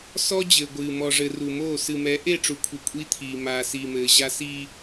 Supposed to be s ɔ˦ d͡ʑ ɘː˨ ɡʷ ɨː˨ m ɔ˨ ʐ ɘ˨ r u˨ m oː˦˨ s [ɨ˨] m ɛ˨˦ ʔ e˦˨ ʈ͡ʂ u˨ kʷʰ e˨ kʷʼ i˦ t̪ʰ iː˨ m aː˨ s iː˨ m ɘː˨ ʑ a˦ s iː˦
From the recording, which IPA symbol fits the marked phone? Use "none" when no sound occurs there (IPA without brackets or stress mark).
ɨ˨